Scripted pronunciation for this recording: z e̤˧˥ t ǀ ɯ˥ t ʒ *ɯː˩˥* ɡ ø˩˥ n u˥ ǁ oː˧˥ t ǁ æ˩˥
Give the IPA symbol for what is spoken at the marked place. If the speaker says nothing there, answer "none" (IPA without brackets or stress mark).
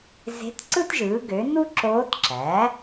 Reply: ɯː˩˥